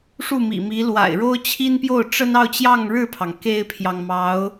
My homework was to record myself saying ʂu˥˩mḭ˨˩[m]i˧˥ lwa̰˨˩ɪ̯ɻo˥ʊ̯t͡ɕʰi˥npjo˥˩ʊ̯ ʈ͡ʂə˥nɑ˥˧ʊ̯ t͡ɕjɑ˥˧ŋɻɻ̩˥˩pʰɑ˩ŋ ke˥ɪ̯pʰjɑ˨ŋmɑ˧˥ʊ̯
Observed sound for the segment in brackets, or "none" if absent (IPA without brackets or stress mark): m